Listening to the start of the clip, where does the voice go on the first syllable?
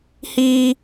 high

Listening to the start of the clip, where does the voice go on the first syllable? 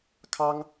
high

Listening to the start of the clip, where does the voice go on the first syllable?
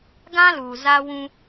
high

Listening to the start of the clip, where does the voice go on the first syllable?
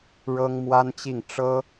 high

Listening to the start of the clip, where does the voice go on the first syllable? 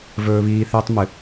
high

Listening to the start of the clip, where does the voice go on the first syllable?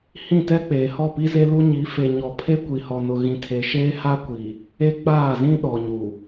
falling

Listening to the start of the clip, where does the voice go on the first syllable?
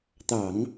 low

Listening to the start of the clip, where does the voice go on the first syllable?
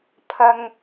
low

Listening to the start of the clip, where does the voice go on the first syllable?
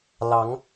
rising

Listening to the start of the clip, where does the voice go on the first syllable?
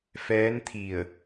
rising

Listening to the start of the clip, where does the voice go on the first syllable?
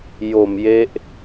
low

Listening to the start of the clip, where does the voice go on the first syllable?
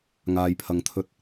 low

